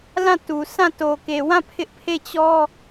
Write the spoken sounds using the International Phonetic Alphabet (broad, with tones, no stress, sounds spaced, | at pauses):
l ã˦˨ t u˨ s ã˦˨ t o˨ k e˨ w ã˦˨ pʰ ɪ˦ ʔ pʰ e˦˨ t͡ɕ ɔ˦